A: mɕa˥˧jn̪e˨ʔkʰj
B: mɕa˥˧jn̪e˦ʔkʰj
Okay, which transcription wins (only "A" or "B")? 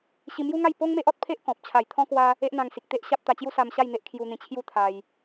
B